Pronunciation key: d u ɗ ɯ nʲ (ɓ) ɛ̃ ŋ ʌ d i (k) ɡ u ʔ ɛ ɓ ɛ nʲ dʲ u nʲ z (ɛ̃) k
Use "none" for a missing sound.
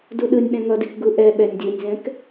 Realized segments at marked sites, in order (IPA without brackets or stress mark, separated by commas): ɓ, k, ɛ̃